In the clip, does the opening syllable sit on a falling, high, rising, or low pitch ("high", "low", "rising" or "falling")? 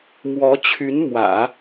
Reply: rising